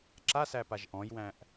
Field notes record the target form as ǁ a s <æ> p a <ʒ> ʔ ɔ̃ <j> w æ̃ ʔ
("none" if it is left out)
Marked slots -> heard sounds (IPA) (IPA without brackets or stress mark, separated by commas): æ, ʒ, j